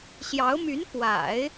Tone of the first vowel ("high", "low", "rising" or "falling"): rising